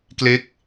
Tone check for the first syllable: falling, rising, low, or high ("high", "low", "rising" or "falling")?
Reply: falling